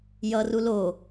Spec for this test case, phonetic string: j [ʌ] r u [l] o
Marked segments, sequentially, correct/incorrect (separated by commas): correct, correct